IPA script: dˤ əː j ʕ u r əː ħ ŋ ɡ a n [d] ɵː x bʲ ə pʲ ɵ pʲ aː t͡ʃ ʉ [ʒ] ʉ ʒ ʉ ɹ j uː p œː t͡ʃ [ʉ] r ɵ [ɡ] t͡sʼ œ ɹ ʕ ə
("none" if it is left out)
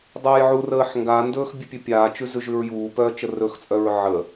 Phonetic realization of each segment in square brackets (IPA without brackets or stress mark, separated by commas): d, z, ə, x